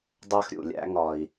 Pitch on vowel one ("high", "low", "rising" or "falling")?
high